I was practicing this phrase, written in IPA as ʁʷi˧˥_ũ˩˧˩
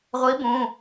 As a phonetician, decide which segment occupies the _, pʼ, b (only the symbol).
b